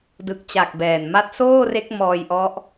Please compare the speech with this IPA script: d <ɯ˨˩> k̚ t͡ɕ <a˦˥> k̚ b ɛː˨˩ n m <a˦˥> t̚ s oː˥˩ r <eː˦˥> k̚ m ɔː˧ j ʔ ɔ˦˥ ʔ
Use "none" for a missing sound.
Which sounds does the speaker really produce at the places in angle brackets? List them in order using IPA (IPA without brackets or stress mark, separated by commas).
ɯ˨˩, a˨˩, a˦˥, e˦˥